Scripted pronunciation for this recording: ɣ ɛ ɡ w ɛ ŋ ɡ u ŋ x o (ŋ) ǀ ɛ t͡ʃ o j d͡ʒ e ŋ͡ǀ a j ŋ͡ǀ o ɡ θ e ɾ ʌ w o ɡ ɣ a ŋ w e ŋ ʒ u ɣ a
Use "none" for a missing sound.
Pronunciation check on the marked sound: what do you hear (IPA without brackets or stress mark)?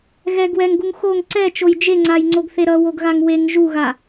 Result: ŋ